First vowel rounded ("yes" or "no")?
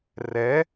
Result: no